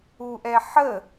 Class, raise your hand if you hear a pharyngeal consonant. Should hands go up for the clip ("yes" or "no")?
yes